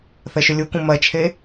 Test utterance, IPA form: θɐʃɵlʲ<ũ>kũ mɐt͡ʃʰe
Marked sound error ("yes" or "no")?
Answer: yes